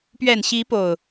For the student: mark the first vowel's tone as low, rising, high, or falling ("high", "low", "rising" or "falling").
low